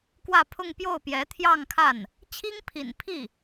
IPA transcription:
k w ä˥˧ pʰ ʊ˥˧ ŋ p j o˥˩ ʊ̯ p j ɛ˧˥ t̪ʰ j ɑ˥˧ ŋ kʰ a˥˩ n | t͡ɕʰ i˥ ŋ pʰ ḭ˨˩ n pʰ i˥˩

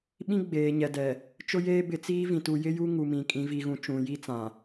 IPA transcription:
ɓ ĩ˦ ɡ͡b eː˨ ɲ ɛ˨ d ɛ˨ | t͡ʃ ʊ˦ j eː˦ b ɪ˨ t͡s iː˦ v ĩ˨ t u˨ j ɪ˦ j u˦ ŋ u˨ m ĩ˨ kʼ ĩ˨˦ v i˨ ɣ ũ˨ t͡ʃ ũ˨˦ j i˦ t͡s ã˨

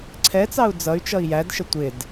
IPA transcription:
ǀʰ ɛ t͡s ɑ u̯ d͡z ʌ y̯ t͡ʃ ʌ i̯ j æ d ʃ ə tʷ ɪ d

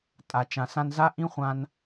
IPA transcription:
tʼ a˨ t͡ʃ ã˨ s ã˧ n z a˦ ʔ ĩ˦ χʷ ã˧ n

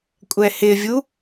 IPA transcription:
kʷʼ ɛ h ɪ vʲ u

